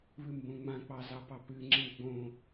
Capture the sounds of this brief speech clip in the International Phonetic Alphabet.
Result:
β ɨ m b õ ŋ͡m ã k͡p ɑ z ɑ p ɑ p ɨ ŋ͡ǁ ĩ ɡ͡b õ

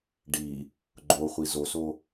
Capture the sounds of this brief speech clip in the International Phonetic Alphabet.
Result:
ɖ i | ɡ͡ǃ o χʷ i z o s o

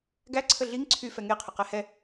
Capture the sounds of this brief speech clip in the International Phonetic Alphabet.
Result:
ɡ æ ǀʰ ə ɮ i ŋ ǀʰ y f ɛ ŋ e qʰ ə q ɛ h ɛ

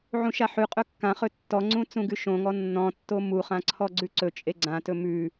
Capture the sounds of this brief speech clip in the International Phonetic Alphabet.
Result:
ʕ ũ ʃ a ħ ʉ qʼ ɵ kː ã χ ɵ tː ɔ ŋ͡ǀ ũ t͡s ũ ɡ ʉ ʃ õ ŋ ɔ nː ɔ̃ tː o m u χ ã ǀʰ ɔ ɡ͡ǀ ʉ ǀ ɵ t͡ʃʼ e ɡ͡ǀ ã t ɵ m ʉ

